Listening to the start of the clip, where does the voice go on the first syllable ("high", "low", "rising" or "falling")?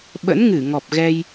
rising